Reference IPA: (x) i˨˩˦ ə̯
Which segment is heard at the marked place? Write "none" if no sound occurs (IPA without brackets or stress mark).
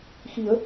x